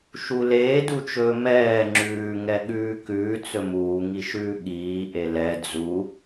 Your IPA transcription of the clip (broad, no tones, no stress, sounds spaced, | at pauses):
ʃ u l eː d u t͡ʃ ɵː m ɛː ŋ͡ǁ ʉː ŋ ɛ ɠ ʉː k ʉː t͡s ɵ m uː ŋ i ʃ ʉː ɠ iː ʔ e l ɛ d͡z u